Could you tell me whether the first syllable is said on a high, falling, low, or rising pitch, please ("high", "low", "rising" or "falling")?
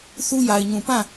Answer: high